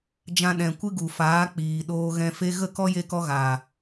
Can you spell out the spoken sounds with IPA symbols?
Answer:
d͡ʒ ã˧ ɗ ɛ̃˨ kʷ ɨ˦ ɡ u˨ f aː˨˦ k͡p iː˨ ɗ oː˧ ɣ ɛ̃˧ f e˦ ɣ ə˦˨ k ɔ˦ j e˧ k ɔ˧ ɣ aː˨

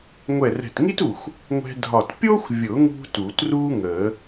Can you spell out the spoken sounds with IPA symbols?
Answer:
ŋʷ ɛ˧˩ r ɛ̤˧˩ t ŋ i˥ t u˧˩ xʷ | ŋʷ ɛ̤˧ dʱ ɒ˧˩ t pʲ o˥ xʷ vʲ ʊ˨˩˦ ŋ ṳ˧ t u˨˩˦ t r uː˥ ŋ əː˨˩˦

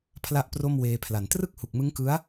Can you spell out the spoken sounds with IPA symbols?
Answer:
pʰ l a˥˩ ʔ p r o˥˩ m w eː˧ pʰ l a˨˩ n t r ɯ˥˩ k̚ h u˨˩ k̚ m ɯ˦˥ ŋ k ɯ˦˥ a̯

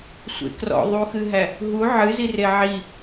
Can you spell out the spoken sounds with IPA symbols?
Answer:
sʷ ḛ k r ɔ̰ ðˤ u x ɨ ɦ æ | ɦ u ʕ ɨ z i r e ʕ i

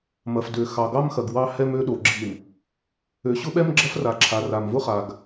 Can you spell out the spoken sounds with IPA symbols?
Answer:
m ɐ˨ f d ø˨ x ɑ˨ ɡ ɑ˦ m x ɐ˨ ɡ w ɑ˦ h ɛ˦ m ø˦ ɗ o˨ ɡ͡ǁ i˨ m | ø˨ ɕ ʊ˦ ɓ ɛ˦ m ɡ͡ǁ ɐ˦ f r a˨ ǁʰ a˨ r a˨ m v ʊ˦ χ a˨ ɡ

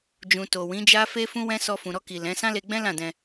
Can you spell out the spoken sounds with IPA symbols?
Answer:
d͡ʒ ũ˨ t o˨ w ĩ˨˦ d͡ʒ a˦ f e˦ f ũ˦ w ɛ̃˦ s ɔ˧ f ũ˨ ɾ ɔ˧ k i˨ l ɛ̃˨˦ s ã˦ l e˧ ɡ͡b ɛ̃˦ l ã˦˨ d ɛ̃˧

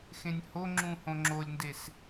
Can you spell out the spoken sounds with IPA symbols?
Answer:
x ẽ nʲ h o ŋ͡ǁ ũ h õ ŋ͡ǁ o lʲ n d e s

